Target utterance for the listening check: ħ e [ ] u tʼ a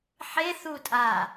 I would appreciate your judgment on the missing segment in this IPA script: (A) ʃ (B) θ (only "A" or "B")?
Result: B